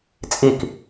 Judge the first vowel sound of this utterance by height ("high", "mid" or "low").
high